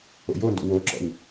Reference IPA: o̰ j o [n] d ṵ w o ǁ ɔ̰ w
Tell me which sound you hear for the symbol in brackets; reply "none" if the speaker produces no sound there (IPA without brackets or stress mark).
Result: n